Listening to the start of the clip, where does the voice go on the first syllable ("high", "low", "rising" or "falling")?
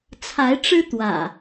rising